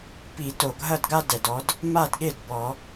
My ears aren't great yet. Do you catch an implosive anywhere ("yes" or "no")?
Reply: yes